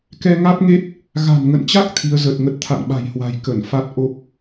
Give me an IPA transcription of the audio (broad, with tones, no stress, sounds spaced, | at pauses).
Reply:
k ɛ˧ ŋ a˦˥ t̚ ŋ e˦˥ t̚ | ɣ a̤˨˩ n ŋ ə̰˧˨ n t͡ɕ a˦˥ k̚ t̪ʰ i˨˦ ə̯ z ə˨˩ t̚ ŋ ə˦˥ t̚ t̪ʰ a̰˧˨ n ɓ a̤˨˩ j h w a̤˨˩ j k ə˧˩ n f a˦˥ t̚ ʔ o˦˥ p̚